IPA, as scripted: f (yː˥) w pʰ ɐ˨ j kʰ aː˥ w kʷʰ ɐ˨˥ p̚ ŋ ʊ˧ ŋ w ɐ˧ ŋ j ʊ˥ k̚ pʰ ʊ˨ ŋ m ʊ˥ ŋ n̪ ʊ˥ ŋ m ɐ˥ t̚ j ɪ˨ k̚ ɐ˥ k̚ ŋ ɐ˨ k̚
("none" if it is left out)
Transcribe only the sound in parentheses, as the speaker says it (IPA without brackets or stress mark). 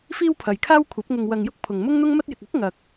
iː˥